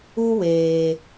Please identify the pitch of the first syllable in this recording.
high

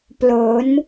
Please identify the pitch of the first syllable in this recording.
rising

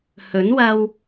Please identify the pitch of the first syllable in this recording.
rising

